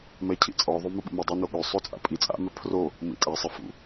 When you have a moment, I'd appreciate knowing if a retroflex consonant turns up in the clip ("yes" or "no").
no